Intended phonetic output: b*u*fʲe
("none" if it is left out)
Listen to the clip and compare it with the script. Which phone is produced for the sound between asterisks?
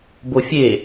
o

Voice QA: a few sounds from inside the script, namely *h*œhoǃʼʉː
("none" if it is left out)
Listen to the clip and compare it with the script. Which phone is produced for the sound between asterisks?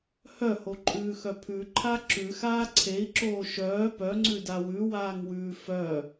h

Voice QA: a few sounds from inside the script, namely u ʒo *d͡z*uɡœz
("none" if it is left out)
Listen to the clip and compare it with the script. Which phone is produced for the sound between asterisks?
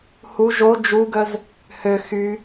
d͡ʒ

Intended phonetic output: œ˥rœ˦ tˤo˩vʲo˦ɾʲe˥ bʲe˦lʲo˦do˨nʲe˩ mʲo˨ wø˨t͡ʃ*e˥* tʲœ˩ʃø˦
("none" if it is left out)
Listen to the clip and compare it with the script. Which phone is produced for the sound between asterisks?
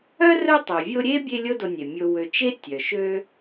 e˥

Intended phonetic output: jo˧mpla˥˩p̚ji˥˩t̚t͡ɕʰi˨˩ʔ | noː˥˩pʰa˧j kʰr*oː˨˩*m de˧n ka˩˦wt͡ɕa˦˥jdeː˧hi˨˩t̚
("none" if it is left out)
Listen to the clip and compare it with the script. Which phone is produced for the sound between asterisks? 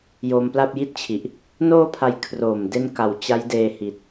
oː˨˩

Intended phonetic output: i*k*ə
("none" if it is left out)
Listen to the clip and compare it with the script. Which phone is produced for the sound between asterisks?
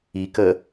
k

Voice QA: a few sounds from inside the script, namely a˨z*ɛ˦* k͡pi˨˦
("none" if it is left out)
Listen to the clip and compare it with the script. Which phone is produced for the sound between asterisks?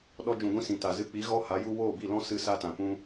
ɨ˦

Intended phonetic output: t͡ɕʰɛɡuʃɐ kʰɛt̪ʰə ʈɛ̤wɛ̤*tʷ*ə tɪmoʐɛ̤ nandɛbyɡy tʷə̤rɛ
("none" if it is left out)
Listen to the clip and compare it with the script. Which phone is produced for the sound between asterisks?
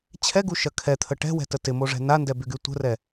t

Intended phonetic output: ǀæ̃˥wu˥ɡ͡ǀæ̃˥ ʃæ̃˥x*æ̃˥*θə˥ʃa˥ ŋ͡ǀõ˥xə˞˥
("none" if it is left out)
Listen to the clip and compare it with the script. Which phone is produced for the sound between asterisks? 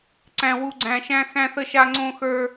æ̃˥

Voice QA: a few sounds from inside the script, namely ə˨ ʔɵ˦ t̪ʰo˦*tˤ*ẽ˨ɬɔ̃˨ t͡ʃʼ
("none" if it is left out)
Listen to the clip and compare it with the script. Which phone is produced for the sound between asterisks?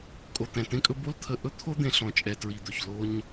d̪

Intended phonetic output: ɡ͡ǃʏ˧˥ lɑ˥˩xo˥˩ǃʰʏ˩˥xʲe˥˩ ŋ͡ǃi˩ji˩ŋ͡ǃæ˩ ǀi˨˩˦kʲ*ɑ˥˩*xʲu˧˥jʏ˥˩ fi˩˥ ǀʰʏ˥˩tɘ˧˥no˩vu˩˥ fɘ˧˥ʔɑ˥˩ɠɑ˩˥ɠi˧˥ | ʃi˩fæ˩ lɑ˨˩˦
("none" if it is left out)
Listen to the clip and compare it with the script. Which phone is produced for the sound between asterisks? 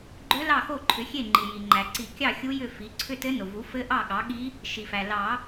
ɑ˥˩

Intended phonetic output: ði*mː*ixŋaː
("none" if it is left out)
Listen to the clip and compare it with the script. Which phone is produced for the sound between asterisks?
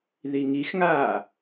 ŋ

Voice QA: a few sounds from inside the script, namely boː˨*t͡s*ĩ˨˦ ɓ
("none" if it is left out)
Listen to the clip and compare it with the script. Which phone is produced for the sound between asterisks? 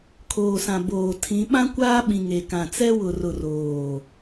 tʰ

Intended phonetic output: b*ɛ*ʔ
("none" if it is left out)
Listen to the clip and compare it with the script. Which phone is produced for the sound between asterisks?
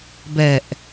ɛ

